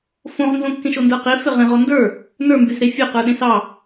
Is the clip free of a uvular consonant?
no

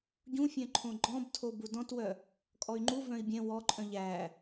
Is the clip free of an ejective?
no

